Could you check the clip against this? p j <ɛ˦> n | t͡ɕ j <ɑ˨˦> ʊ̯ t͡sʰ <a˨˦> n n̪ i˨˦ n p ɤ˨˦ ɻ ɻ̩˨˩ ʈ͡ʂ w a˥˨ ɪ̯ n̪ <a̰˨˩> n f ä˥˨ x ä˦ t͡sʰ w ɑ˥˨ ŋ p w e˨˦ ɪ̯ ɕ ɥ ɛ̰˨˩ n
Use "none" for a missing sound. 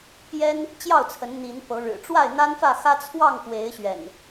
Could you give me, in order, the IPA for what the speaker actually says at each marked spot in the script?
ɛ˦, ɑ˥˨, ə˨˦, a˦

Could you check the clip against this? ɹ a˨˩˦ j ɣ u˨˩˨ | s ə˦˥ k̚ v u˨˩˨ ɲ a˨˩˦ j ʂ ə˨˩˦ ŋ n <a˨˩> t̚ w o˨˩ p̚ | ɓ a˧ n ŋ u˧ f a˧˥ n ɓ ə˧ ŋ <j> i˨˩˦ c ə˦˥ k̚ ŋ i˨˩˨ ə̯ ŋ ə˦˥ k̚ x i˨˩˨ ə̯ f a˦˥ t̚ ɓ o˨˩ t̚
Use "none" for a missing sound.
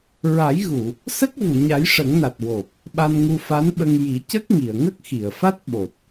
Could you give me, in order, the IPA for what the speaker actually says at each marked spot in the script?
a˨˩, j

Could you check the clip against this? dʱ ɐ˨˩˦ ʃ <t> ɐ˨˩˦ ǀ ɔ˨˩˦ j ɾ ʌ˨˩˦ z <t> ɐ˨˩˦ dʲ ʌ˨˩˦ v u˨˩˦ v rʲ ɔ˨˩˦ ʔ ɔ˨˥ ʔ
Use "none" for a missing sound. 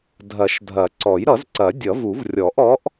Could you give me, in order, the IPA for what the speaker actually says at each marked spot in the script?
dʱ, ǀ

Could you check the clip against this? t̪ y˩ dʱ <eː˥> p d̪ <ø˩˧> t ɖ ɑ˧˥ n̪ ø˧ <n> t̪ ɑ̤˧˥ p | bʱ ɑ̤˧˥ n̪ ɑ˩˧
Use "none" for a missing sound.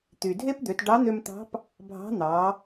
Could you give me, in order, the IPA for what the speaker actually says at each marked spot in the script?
e˥, ø˩˧, m

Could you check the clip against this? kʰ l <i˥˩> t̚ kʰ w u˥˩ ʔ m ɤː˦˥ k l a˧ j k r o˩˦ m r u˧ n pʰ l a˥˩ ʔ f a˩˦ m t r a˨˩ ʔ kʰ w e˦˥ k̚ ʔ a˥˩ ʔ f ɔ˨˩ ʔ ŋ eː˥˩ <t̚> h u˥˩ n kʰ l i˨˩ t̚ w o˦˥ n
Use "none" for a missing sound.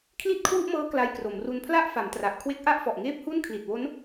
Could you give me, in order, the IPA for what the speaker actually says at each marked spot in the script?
i˥˩, p̚

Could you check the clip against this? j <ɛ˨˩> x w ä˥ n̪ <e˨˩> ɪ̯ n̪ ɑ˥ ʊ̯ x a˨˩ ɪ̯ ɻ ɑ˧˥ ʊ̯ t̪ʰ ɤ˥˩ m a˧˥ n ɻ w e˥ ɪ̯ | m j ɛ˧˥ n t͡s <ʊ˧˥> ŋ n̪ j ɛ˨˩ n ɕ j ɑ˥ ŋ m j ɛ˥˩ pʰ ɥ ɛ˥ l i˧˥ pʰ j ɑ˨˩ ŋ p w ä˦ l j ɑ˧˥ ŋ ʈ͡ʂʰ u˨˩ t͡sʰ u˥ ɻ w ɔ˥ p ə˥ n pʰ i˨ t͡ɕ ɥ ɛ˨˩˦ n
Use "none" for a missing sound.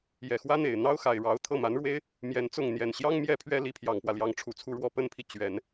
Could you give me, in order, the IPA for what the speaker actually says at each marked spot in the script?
ɛ˨˩, e˨˩, ʊ˥˩

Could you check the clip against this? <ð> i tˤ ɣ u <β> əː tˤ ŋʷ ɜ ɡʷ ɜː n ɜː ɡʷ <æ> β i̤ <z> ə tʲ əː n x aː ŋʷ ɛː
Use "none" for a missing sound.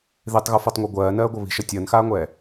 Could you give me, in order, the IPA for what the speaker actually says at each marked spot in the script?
ð, f, ə, ʃ

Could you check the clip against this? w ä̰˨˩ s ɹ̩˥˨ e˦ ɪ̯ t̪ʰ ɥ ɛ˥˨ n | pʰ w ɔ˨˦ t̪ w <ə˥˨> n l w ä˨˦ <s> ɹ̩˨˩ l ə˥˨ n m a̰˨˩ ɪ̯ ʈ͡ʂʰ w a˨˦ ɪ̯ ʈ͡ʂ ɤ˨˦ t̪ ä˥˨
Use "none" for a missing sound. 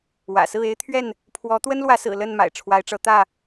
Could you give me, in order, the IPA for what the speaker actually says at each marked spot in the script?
ə˦, s

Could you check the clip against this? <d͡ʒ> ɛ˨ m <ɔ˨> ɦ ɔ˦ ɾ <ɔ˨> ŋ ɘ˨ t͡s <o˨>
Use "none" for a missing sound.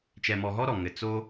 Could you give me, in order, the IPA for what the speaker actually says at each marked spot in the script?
t͡ʃ, ɔ˨, ɔ˨, o˦

